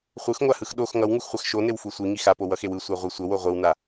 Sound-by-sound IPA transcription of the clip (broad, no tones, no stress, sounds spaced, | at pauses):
χʷ ɯ x ŋʷ a h ɯ x ɗ o x ŋ ʌ w ŋ u x χʷ a x ʃ o n e w f u sʷ i ŋ i x a p o w ʌ x e w ɯ sʷ a ʁʷ e sʷ ʌ w o ʁʷ ɯ w n a